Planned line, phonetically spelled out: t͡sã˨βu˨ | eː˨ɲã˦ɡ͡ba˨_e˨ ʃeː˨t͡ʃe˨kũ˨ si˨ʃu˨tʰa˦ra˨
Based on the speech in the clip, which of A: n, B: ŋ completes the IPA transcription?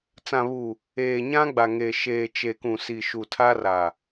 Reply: B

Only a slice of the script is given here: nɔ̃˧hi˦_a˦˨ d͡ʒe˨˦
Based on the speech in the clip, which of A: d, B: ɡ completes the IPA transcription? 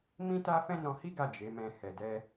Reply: B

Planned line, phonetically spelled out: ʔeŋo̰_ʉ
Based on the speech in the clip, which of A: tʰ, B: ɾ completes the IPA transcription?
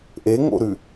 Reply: B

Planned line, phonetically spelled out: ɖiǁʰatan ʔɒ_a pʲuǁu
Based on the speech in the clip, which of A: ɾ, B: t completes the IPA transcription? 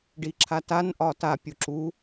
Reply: B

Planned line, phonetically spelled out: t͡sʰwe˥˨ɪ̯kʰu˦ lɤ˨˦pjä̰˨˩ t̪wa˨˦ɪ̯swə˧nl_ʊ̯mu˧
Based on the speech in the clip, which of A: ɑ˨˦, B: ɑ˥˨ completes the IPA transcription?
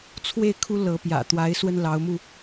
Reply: A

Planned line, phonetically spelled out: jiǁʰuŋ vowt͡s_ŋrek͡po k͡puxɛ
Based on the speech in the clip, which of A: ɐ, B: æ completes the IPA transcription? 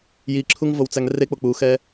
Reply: B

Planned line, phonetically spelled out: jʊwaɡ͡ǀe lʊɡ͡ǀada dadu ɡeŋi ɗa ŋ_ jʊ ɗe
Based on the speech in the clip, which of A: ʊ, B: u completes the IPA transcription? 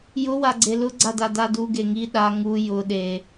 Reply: B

